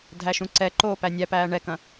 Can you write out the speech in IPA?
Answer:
dʱæʃũǀɛǃoː pænʲæpæː ɳɛkɐ̃

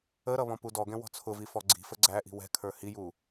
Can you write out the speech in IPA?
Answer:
əɾʌ βɔ̃pudɔɡɛ̃ wɔ̤t͡sʰʊvi fɔɡ͡ǀi̤fə ɡ͡ǀæʔi̤ wɛ̤kʰə˞ hiju

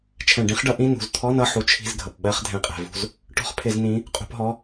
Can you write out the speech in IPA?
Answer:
t͡ʃʰɛ̃˧˩˧ɖĩ˨˥χɖʌ˨˥ ʔĩ˧˥˧nṳ˩˧˩z t̪ʰɔ˧˥˧nʌ˦˨ ħu˨˥t͡ʃʰi̤˧˥˧zɡʱʌ˩p ɓɜ˧˥˧χ dʱɛ̃˧˩˧qʼɛ̤˩vṳ˦˨z | ʈɔ̤˦˨χpʰɪ˧˩˧z nĩ˨˥ | qʼṳ˧˩˧pɦɔ˩˧˩

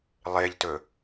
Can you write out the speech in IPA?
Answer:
lˠeʎtɵ

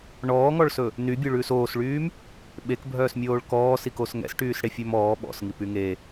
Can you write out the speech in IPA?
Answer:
ɳɔːŋɔɭsɵ | nybʲoɭʉːs oːsɭyːm | ɓekbʱœːsmʲoːɭ kɔːsikos ŋɛ̰sʈyːsɽefʲɵm ɔː ɓɔ̰sŋipy ŋe

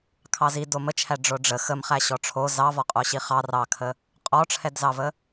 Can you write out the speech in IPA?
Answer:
kʰɑzi domət͡ʃʰæ ɖ͡ʐoɖ͡ʐə xəm χæɕɔʈ͡ʂʰo zɑvɔqʼoɕi χɑ rɑkʰə | qʼɔʈ͡ʂʰɛdzɑvə

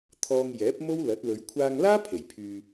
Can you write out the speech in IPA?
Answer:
t̪ʰɔː˧ŋjɛː˨˥p̚mo˥w lɐ˨˥t̚lɵ˨˧ɥ kʷʰaː˧ŋlaː˥ pʰe˨˩jpʰyː˨

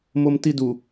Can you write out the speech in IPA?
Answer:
momtidu

